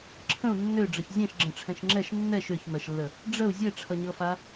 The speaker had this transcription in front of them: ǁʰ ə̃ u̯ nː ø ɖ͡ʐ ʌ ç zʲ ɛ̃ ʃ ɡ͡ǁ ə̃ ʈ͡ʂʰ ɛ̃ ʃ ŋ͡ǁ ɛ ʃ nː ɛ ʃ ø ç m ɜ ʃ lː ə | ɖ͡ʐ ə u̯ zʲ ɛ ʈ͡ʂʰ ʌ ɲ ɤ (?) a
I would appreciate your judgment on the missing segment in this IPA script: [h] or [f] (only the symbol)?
f